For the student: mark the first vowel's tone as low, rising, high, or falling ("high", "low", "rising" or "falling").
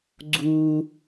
high